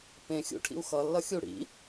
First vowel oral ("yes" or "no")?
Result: no